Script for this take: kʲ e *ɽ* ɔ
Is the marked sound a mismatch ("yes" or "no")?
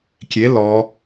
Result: yes